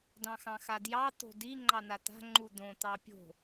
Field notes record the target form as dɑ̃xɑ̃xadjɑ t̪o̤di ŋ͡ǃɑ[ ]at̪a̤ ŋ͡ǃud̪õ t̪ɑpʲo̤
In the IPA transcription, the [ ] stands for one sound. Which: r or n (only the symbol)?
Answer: n